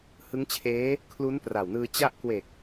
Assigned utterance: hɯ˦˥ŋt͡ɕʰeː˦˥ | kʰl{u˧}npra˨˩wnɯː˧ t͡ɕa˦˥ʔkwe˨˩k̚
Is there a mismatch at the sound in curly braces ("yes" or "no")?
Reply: yes